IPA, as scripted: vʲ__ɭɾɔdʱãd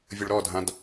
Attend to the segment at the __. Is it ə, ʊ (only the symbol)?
ʊ